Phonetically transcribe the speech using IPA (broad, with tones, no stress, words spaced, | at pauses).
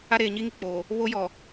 a˦ɾeː˨ɲi˦ŋi˨ k͡po˨ | βo˦jɔ˨